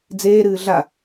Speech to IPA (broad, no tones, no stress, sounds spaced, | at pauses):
d͡z eː ɾ ɨː ɮ a